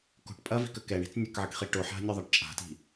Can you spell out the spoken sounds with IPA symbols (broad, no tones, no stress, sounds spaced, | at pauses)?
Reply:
k o̤ ʈ pʼ ɐ v i̤ k ə k ɛ ɳ i̤ t͡s nʲ ɐ k ʕ ɨ k χ i ʈ o ħ a̤ nʲ o ðˤ a ʈ t͡ʃʼ a̤ t i̤